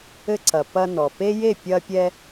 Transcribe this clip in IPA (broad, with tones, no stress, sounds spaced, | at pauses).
ɘ˧ ǀ ɐ˨ p ɐ˧ n ɔ˨ p e˦ j e˦˨ pʲ ɐ˧ pʲ ɛ˧